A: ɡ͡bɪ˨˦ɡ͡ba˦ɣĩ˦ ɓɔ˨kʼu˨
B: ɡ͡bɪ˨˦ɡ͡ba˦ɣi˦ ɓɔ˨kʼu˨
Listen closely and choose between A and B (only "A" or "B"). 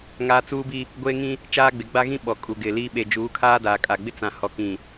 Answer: A